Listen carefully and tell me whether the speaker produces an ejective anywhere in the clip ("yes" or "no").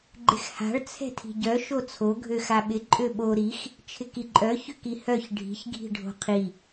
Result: yes